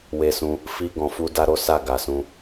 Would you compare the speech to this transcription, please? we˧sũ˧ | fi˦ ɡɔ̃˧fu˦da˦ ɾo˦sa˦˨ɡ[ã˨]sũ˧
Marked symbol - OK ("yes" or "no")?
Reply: no